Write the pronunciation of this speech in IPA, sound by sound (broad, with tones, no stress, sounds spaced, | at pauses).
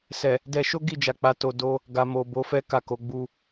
s ɛ˨ | d ɛ˧ ʃ o˦ ɡ i˦˨ d͡ʒ a˨ k͡p a˨˦ t o˧ d o˧ | ɡ a˨ m o˨ b o˨˦ f ɛ˦ k a˦˨ k o˨˦ ɡ͡b u˧